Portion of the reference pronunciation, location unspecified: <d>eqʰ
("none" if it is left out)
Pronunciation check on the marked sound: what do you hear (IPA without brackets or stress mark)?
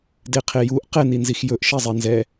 d